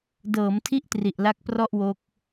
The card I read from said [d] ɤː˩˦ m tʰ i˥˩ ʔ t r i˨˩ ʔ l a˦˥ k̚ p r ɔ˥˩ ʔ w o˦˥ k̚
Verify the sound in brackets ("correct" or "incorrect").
correct